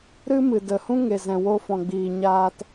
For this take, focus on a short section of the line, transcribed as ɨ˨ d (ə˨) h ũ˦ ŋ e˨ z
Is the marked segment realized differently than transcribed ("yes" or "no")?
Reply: no